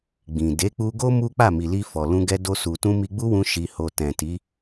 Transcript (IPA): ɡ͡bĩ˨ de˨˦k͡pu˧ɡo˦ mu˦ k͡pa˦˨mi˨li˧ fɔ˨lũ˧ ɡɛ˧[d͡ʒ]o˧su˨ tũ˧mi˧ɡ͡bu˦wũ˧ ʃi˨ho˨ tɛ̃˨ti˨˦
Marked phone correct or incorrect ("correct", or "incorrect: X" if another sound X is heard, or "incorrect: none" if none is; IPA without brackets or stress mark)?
incorrect: d